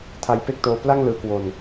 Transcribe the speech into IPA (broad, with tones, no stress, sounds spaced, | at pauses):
tʰ a˧ j p e˥˩ k̚ t oː˧ p l a˥˩ ŋ l ɯː˧ k w o˧ n